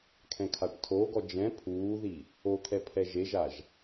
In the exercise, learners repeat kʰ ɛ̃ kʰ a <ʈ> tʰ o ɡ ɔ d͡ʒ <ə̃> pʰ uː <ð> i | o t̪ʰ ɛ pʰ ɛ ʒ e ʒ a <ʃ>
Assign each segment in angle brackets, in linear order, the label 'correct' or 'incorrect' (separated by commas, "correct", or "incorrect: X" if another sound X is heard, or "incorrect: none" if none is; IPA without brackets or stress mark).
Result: correct, incorrect: ɛ̃, correct, incorrect: ʒ